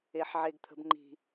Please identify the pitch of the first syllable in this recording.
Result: low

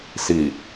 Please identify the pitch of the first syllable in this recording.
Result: low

